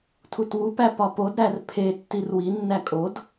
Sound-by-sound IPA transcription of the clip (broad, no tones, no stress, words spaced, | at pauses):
tʰutwupæ pɒpodɾær pʰe tːirwi nːækʼod